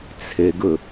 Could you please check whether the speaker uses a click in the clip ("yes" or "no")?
no